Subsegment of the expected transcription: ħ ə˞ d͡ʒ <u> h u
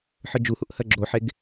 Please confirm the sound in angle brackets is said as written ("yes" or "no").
yes